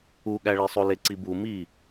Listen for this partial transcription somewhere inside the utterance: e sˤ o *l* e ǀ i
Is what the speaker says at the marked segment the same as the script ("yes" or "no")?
yes